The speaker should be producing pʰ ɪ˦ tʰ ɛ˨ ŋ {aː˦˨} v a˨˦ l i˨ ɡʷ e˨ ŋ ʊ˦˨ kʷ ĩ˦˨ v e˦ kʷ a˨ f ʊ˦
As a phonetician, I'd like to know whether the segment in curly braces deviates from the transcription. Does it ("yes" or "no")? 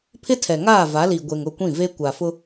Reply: no